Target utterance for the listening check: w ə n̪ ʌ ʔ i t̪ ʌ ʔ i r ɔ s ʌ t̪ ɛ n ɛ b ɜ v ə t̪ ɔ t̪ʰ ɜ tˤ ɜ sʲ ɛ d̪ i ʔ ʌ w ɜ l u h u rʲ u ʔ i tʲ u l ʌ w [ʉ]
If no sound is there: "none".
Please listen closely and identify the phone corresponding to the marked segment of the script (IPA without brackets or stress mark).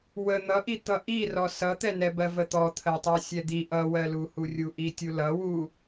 u